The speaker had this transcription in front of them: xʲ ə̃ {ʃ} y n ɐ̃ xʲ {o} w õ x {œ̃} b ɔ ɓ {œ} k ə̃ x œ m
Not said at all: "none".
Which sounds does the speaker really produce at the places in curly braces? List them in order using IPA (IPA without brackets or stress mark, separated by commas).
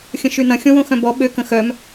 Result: ʃ, õ, œ̃, ø